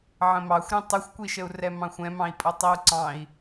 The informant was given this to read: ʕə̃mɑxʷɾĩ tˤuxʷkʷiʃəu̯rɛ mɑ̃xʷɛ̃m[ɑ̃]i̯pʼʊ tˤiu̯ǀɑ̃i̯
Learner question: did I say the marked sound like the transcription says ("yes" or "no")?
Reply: yes